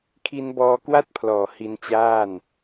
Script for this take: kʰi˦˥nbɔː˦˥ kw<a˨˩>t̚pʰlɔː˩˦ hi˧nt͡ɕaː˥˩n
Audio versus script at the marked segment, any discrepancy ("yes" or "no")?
yes